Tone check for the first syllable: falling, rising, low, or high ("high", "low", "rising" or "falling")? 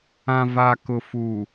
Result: low